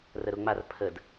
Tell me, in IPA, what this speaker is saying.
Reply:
rəɾʊŋ͡mar pʰəd

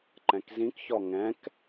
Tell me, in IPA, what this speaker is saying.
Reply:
ǃɛ̃kzĩkçɔ ŋɛ̃k

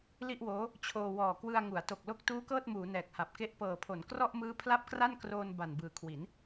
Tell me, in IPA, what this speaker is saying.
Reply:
li˥˩ʔwoː˦˥ | t͡ɕʰoː˧wɔː˨˩ kwɯ˧a̯ ŋu˩˦a̯to˨˩k̚lo˦˥k̚ tuː˦˥kɤː˥˩t̚muː˩˦ nɛː˨˩k̚ha˨˩p̚ke˥˩ʔ pɤː˨˩pʰo˩˦n krɔ˥˩ʔmɯː˦˥ pʰla˥˩p̚kra˥˩nkroː˧n ba˨˩nbɯː˨˩kʰwi˩˦n

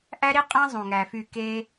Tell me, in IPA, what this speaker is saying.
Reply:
ʔæ˦ɾi˦qʼæ̃˦ zˤũ˨ŋæ˨fy˦˨ ke˦

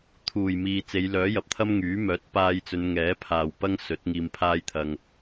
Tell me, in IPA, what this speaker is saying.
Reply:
t̪ʰuː˨˩jmiː˨t͡se˨˧jlœː˨˥ jɐ˨p̚t̪ʰɐ˥mŋyː˨˥mœː˨˥t̚ paː˧jt͡sɵ˨˧n ŋɛː˨˥pʰaː˨w pɐ˥ŋsɵ˨˥t̚ ŋiː˧mpʰaː˥j t̪ʰɐ˧ŋ

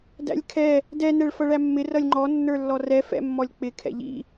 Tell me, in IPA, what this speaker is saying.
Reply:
dæ̰lʲkʰɛ | dɛ nɛɭfʌɭæmːɪ rʌlʲŋ͡ǃɔ nːə˞lːɔrɛ fɛ̰mːɔlʲk͡pɪ kʰɛ̰ʎḭ

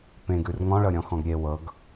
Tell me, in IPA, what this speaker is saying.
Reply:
pẽɡ ʉrŋɔ̃ɭɤɾʲɔ̃ xɔ̃ɡɾʲe wɤɡ

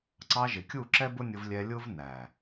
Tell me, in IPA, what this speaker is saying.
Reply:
ǀɑ˧ʒɪ˨kʲu˦˨ ǁɛ˦bʊ˦nʲʊ˧vlʲɛ˧ lʲʊ˦vnæ˨

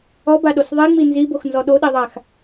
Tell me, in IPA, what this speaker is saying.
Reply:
ɔbaɗos ðˤiŋ͡mi nziboxnzɔ ɗoɗeðˤax

